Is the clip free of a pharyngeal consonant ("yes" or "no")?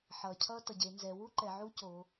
no